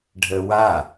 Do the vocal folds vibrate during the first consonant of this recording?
yes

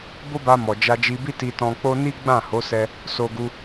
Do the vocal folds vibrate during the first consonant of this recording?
yes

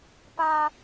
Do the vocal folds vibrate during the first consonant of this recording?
no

